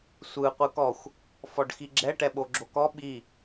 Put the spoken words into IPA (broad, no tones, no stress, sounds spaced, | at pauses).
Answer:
sʷ ɯ qʷ ɯ k ɔ xʷ | f ɔ ɖ x i ɡ͡ǁ ɛ ʈ ɛ ɓ o ɡ͡ǁ o k ɔ ɓ i